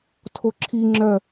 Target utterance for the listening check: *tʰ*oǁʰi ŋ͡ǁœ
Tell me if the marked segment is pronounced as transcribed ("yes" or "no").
yes